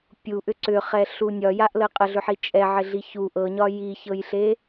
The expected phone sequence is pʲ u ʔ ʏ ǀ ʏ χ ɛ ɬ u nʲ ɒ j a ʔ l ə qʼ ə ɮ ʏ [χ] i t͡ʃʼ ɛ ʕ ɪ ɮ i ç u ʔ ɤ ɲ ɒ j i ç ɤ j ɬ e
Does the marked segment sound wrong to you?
yes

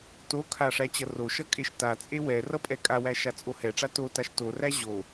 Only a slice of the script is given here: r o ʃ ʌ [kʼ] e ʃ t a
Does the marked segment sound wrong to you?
no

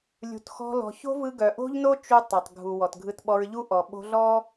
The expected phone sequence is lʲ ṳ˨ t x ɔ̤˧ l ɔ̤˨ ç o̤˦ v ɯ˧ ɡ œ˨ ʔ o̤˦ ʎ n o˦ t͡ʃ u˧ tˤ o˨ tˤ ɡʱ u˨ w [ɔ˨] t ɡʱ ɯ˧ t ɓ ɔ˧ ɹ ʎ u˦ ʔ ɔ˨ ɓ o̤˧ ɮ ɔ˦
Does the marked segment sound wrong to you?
no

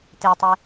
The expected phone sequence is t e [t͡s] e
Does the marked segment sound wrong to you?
yes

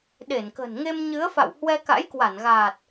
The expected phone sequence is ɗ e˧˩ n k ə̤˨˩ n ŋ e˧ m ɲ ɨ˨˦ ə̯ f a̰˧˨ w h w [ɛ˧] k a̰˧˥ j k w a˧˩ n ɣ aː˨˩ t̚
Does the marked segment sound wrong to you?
no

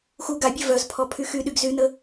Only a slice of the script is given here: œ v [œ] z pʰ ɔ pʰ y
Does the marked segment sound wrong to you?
no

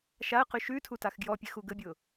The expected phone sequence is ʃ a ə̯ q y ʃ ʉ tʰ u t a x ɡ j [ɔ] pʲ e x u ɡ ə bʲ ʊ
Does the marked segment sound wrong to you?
no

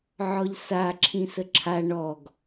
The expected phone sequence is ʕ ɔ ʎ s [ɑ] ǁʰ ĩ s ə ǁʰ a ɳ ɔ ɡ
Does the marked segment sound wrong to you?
yes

